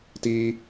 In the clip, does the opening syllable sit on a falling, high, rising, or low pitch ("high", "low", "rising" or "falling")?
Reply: high